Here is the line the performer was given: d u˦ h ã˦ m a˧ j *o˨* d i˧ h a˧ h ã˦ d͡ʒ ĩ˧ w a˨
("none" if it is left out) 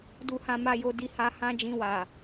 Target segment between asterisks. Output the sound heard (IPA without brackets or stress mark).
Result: o˧